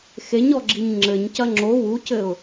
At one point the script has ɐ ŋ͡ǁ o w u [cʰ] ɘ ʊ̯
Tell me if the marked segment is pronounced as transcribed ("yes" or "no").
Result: no